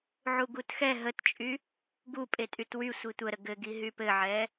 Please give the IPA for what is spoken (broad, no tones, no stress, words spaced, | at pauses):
ʕuɡutxɛ ɦətt͡ʃʼy | ɡupʼetʼyt wy sʷitʷəɾə ɡɘɡi ɦypɘʕɛ